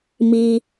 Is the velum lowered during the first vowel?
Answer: no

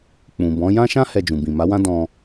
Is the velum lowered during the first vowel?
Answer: yes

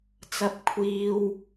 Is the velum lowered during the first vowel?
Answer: no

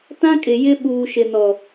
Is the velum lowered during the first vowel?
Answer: yes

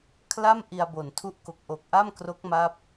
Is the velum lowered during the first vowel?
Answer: no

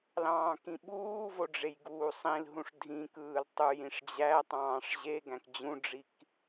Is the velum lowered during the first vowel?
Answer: yes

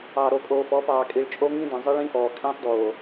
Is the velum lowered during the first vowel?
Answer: no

